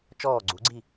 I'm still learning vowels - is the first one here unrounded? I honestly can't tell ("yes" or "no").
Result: no